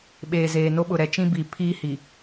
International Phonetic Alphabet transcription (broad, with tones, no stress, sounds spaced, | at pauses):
ɓ eː˨ z eː˨ n o˦ ɓ ʊ˨ ɾ ɛ˦ t͡ʃ ĩ˦ b i˨ pʰ iː˦ h i˨